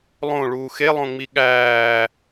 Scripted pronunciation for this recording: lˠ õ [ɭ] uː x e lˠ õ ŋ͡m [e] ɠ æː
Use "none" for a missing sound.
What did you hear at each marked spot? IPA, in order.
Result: ɭ, i

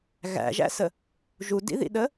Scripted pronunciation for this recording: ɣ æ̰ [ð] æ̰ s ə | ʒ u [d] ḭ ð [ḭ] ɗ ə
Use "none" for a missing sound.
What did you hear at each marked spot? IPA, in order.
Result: ʒ, d, ḭ

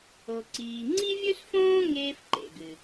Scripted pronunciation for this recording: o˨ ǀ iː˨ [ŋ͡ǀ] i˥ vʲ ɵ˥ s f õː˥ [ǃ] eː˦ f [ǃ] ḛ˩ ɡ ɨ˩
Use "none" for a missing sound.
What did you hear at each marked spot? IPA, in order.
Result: ŋ͡ǀ, ŋ, ǃ

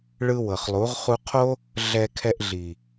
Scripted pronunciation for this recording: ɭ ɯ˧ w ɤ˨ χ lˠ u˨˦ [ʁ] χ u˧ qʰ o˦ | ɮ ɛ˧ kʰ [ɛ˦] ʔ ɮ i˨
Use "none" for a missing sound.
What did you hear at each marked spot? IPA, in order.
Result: ʁ, ɛ˧

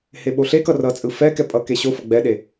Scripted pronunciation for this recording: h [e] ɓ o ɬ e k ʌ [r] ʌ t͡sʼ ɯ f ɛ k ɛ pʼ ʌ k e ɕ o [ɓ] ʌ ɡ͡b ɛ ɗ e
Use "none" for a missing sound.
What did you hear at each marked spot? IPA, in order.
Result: e, r, f

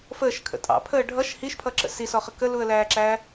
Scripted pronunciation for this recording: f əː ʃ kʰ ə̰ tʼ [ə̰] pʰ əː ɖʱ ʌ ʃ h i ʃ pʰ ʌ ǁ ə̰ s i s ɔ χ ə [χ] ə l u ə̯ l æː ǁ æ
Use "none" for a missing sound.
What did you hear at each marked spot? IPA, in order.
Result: ɑ̰, k

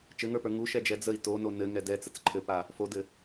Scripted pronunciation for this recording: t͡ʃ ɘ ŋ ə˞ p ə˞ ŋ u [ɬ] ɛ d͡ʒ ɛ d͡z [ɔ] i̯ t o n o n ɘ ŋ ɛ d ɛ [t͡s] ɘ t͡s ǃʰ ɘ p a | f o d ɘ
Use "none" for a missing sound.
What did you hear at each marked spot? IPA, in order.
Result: ʃ, ə, t͡s

